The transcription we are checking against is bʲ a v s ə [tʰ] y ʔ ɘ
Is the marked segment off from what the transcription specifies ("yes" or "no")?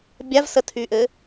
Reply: no